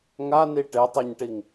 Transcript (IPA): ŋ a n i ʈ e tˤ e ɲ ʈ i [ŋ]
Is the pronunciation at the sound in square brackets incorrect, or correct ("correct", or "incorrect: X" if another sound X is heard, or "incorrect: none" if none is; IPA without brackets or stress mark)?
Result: correct